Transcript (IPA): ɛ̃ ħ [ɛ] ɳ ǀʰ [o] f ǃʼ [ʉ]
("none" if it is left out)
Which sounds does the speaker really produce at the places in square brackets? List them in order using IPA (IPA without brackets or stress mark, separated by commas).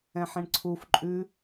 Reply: ɛ̃, u, ʉ